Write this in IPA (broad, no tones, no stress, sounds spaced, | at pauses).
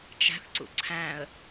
t͡ʃ æ̤ θ ǀ ṵ ǀʰ æ̃ ə̯